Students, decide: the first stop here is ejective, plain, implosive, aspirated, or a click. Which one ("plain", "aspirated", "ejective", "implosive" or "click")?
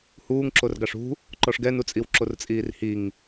click